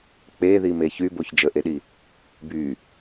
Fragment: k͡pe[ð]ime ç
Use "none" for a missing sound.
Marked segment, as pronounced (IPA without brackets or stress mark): ð